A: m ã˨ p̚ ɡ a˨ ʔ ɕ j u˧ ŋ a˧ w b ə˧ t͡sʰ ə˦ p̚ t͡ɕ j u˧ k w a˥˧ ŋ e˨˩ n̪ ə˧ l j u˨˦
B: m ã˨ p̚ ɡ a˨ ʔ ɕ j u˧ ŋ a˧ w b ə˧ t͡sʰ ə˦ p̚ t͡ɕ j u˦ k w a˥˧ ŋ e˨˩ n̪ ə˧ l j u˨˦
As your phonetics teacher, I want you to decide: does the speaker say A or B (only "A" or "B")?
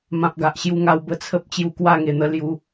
A